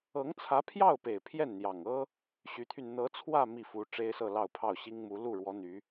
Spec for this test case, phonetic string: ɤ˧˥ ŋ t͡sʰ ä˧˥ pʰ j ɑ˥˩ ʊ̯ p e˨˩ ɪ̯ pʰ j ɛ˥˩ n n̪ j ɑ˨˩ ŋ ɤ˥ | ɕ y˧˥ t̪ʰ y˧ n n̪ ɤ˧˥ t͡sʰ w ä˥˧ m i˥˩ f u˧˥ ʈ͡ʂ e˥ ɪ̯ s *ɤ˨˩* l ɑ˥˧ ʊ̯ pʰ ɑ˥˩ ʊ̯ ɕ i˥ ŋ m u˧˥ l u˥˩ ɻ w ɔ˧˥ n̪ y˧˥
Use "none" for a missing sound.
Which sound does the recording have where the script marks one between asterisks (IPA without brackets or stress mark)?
ɤ˥˧